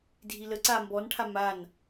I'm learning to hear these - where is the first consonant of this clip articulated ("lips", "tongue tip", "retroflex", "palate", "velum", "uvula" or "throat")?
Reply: tongue tip